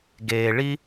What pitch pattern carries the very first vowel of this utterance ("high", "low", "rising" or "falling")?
low